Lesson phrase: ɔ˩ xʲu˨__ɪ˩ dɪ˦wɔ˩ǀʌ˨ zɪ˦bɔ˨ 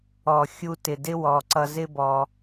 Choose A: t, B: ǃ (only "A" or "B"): A